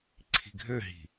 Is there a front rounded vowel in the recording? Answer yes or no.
yes